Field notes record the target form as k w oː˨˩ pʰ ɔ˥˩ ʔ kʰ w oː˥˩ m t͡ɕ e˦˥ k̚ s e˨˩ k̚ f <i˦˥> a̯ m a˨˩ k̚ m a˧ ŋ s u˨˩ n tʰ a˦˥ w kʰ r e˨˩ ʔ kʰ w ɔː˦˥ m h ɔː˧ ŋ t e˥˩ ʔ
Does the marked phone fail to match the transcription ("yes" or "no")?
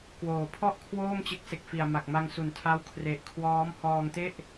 yes